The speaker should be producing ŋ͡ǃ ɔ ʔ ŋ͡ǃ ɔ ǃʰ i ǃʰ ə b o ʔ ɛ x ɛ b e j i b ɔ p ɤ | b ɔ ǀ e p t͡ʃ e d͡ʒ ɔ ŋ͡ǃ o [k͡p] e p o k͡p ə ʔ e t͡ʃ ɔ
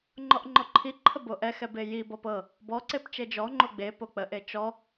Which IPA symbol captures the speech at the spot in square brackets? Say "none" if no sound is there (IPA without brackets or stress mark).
ɡ͡b